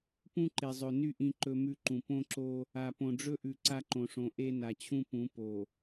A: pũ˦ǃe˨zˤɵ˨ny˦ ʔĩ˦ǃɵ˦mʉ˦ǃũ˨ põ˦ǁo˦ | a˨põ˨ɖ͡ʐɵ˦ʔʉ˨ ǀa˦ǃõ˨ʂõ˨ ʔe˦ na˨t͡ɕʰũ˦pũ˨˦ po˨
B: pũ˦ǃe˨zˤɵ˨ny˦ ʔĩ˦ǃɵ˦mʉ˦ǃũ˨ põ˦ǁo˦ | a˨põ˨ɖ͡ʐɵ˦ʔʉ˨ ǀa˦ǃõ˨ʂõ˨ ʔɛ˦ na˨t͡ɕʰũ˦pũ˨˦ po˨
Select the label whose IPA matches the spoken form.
A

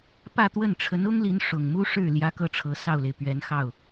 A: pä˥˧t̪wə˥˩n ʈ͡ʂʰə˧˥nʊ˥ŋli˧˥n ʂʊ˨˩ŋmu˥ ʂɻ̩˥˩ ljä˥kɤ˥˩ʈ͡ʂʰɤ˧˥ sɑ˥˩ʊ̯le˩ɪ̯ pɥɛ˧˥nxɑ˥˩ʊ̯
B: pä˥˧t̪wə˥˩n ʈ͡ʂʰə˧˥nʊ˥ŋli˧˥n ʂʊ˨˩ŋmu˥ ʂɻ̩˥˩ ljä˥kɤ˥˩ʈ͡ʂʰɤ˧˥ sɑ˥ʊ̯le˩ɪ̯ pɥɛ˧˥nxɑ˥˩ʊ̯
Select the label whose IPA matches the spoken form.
A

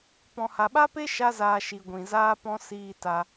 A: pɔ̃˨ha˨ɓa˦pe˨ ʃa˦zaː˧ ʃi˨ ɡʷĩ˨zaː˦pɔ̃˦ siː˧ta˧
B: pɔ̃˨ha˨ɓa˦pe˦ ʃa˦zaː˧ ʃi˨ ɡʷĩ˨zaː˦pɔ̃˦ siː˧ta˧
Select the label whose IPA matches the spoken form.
B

